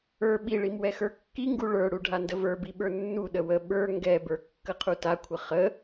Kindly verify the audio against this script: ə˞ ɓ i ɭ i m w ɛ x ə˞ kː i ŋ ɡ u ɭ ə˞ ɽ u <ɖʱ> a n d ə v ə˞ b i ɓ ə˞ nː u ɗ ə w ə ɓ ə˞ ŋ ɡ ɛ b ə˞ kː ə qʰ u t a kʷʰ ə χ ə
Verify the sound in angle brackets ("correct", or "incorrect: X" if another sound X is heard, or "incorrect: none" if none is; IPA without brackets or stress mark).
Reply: correct